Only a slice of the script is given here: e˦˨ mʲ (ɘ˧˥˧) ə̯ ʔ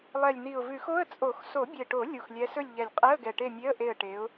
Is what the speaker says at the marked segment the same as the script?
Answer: no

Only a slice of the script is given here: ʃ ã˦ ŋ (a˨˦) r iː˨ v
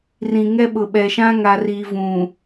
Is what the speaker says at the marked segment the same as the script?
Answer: no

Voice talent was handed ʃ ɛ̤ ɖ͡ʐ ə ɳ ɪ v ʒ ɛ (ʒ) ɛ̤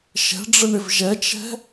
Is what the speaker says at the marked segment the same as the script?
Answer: no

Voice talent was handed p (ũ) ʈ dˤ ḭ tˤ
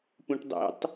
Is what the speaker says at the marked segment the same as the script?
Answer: yes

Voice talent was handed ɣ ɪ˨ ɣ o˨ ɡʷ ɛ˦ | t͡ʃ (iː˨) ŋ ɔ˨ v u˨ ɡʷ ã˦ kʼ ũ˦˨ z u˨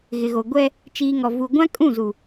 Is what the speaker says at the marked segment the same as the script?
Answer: yes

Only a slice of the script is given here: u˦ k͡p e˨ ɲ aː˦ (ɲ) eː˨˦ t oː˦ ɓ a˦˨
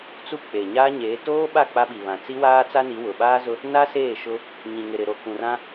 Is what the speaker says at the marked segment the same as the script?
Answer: yes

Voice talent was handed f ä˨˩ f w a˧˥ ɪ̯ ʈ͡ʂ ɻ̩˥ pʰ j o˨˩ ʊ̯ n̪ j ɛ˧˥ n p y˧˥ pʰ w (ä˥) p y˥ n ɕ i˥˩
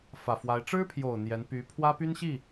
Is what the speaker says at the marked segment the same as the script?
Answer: yes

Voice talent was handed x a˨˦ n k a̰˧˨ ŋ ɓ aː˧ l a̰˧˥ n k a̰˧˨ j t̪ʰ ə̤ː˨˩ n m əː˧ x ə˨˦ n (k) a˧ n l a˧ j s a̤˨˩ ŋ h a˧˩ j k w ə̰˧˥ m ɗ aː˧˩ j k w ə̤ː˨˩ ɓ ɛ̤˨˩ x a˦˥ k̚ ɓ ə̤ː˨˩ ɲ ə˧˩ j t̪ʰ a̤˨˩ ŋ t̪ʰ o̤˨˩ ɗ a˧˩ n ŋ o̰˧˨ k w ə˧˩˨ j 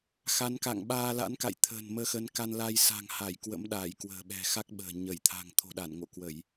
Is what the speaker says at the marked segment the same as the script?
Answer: yes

